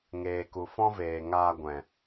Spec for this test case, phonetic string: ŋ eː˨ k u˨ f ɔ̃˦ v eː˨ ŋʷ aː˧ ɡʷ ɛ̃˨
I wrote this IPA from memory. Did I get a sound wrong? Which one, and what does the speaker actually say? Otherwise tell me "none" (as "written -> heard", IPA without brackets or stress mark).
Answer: ŋʷ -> ŋ